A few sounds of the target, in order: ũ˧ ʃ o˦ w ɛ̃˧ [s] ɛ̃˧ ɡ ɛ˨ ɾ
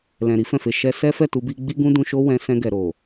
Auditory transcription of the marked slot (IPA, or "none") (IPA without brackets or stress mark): s